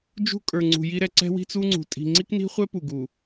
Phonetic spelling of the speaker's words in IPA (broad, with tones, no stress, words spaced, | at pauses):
d͡ʒṳ˦kʼə˞˨ŋ͡ǀṳ˨ji˦ ɾɛ˨ǀɛ̤˦wi̤˦ t͡su˦ŋ͡ǀṳ˨ tʼi̤˨ŋ͡ǀi˦kni̤˦χʷɛ˦ pu˨ɡu˨